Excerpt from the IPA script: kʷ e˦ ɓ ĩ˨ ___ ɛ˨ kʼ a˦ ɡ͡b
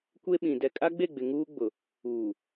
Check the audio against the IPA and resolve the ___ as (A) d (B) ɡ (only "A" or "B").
A